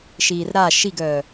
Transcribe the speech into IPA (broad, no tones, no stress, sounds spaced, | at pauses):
ʃ iː r ɾ a ʃ i ɡ œː